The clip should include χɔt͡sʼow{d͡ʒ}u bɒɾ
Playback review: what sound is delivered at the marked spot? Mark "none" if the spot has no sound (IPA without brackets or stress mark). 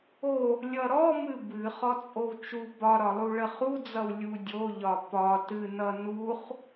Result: t͡ʃ